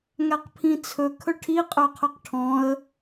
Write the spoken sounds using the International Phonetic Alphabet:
ŋ æ q pʰ ĩ t͡sʰ ɵ kʰ ɵ ʈʰ i qʼ ø qʰ ɵ q ʈʰ ɔ̃ ə̯

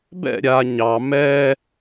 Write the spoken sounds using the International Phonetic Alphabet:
b ɛ̰ ɾʲ a ɲ ɑ m ɛ

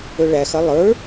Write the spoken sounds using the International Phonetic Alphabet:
ɵ ɭ æ x ɐ lˠ ə˞

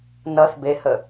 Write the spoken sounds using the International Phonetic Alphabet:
n ʌ θ b e h ə

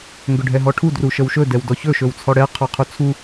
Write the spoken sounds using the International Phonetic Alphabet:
ŋ ɡ ɵ ɖʱ ɛ ɦ ɔ ʈʰ u d r u ʃ ə w ʃ ɵ d ɛ w d ɔ ç ɵ ʃ ɵ w t͡sʰ ɔ ɽ ɛ qʰ ɔ qʰ u t͡sʰ u

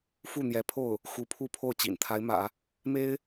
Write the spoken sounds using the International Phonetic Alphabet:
f u˥˩ n̪ j ɛ˧˥ pʰ o˥˩ ʊ̯ | x u˧˥ pʰ u˥˧ pʰ o˥˩ ʊ̯ t͡ɕ ḭ˨˩ n t̪ʰ a˧˥ ɪ̯ m ä̰˨˩˦ | m e˥ ɪ̯

